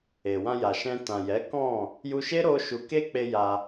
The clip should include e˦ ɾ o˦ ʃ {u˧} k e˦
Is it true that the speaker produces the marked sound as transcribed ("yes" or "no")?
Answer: yes